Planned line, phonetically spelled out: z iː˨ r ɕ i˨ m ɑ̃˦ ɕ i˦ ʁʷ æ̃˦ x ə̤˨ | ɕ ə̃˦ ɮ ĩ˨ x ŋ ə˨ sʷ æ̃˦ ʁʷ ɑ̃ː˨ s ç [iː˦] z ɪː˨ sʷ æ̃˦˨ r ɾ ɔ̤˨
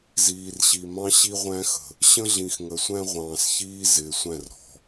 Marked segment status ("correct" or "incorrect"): correct